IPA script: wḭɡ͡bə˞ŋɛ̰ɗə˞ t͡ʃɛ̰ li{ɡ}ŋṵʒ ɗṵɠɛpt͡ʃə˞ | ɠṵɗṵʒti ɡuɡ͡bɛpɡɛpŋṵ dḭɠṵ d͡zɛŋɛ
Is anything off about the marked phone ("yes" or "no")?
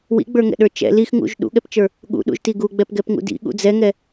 yes